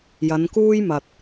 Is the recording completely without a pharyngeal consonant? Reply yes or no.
yes